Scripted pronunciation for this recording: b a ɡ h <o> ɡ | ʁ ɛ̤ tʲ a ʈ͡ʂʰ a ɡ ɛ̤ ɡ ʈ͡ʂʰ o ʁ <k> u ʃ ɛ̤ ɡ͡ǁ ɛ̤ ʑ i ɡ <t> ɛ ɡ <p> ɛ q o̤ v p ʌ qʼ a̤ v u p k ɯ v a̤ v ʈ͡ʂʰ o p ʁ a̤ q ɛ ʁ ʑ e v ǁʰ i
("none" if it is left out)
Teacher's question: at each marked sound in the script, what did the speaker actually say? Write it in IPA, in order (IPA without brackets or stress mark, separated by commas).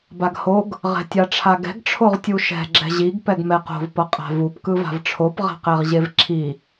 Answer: o, tʲ, p, m